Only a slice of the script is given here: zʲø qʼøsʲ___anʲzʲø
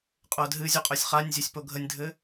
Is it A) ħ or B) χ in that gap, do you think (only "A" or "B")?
B